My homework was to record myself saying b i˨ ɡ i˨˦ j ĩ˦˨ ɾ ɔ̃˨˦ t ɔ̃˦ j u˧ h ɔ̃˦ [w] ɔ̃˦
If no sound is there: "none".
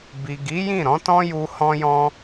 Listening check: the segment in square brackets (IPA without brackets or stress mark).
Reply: j